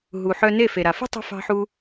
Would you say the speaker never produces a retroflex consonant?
yes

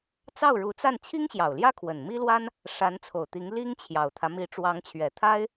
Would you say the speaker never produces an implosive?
yes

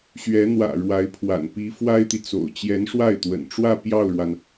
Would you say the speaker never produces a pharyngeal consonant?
yes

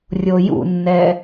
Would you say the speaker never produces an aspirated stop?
yes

